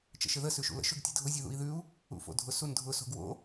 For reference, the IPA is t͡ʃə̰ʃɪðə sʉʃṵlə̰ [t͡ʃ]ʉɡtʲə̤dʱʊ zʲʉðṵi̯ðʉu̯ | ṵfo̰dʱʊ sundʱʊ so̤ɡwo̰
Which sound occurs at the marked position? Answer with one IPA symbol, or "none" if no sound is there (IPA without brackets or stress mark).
ʃ